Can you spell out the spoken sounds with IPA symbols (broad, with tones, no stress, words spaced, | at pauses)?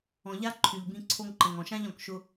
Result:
ɔ̃˨ʎa˦ ǃʰy˨ʎbĩ˧ ǀʰo˧ŋǃə̃˨ŋɔ̃˨ʃã˦ʎ ɔ̃˨kʃʊ˧